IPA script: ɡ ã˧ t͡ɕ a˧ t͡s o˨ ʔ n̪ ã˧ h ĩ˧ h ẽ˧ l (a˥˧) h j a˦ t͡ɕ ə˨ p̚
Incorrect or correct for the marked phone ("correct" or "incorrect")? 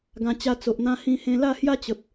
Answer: correct